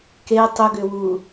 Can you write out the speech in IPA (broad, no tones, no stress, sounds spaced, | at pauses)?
k e tˤ ʏ ɡ ʏ w u